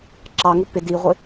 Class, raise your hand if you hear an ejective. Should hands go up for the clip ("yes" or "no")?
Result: no